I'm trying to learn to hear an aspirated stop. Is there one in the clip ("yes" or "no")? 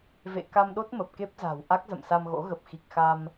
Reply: no